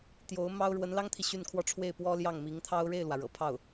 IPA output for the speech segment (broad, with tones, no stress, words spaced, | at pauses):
t̪jo˧˥ʊ̯ mɑ˥ʊ̯ ɻwə˧˥nlɑ˥ŋt̪ʰi˨ ɕy˥˩nkʰwɔ˥ ʈ͡ʂʰwe˥˩ɪ̯pwɔ˥ ljɑ˥˩ŋmi˧˥ŋt̪ʰɑ˥ʊ̯ ɻe˥˩ɪ̯lwä˩ ɻɤ̰˨˩pʰɑ˥˩ʊ̯